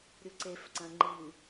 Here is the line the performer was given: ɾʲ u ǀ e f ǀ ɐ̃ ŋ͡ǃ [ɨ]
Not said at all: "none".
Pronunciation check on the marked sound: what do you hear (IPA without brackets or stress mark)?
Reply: ɨ